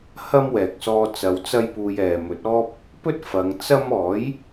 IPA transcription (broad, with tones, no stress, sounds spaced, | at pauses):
h ɐ˥ m w ɛː˨ k̚ s ɔː˧ t͡s ɐ˨˧ w t͡s ɐ˥ j p uː˧ j ɛː˨ m ɵ˨˥ t̚ ɔː˥ p̚ | p ɵ˥ t̚ f ɐ˨˧ ŋ t͡s ɐ˥ m ɔː˨˥ j